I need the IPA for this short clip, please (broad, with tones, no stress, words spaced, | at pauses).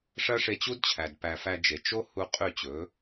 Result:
ʂɐ˥ ʂe˧t͡ɕu˥dt͡ɕʰæ˩d pæ˧ fæ˧d͡ʒe˩ t͡ʃo˥hu˧ qʼy˥˩t͡ɕɵː˩˥